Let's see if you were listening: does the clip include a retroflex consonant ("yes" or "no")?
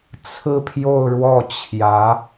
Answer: yes